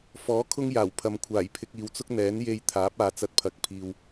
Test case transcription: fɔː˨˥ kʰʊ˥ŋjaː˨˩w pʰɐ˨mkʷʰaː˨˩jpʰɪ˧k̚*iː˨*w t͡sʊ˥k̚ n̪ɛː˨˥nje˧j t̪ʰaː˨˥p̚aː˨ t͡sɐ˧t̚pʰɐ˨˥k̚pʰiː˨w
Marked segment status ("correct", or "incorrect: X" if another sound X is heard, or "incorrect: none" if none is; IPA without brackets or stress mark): correct